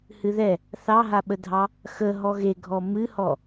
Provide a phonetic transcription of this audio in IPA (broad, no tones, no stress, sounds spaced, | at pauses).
h ɨ ð ɛ | θ ɑ ɦ a ɓ ə dʱ ɑ | x ə ɦ ɔ ɣ e ɡʱ ɔ m ɨ h ɔ